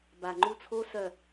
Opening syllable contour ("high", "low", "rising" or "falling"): low